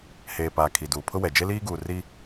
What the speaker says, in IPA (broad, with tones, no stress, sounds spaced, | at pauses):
h eː˨ p aː˨ kʰ i˨ d uː˨ pʰ ʊ˦ w ɛ˨ d͡ʒ e˦ l iː˦ ɡ uː˨ r i˦